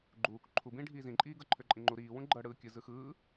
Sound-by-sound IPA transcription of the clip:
ɡ͡ǃ uː k ǃʰ u b ĩː ɖʱ iː z ĩ ǃʼ iː ɡ ɤ ǃʰ ø ǃʼ ĩ ŋ͡ǃ u ɾ iː w ũ ɡ͡ǃ ɤ ɽ ɯː kʲ ɯ z ɯ x ɯː

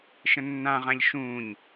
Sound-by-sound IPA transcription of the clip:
ʃ ə̃ nː ã ʁ ã ʎ ʃ ũː ɲ

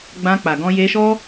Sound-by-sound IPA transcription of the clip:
ɡ͡b ã˧ k͡p a˨ ɡ ɔ̃˧ j e˧ ʃ ɔ˦

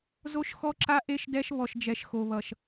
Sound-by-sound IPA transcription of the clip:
z o˦ ʃ x ɔ˦ ǁ a˦ ʔ e˦ ʃ d ɛ˦ ʃ β ɔ˨ ʃ d͡ʒ ɛ˨ ʃ x o˨ β ʌ˨ ʃ

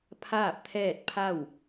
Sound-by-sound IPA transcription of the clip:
pʰ aː˥˨ p̚ t̪ʰ ɛː˥˨ t̚ pʰ a˥˨ w

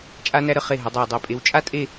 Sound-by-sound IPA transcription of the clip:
t͡ʃʼ a˧ n æ˧ ɾ ə˧˩ χ e˧˩ ɦ ə˩˧ dˤ æ˧˩ dˤ i˧˩ pʼ e˧ w t͡ʃʼ a˥ tʼ e˥˧

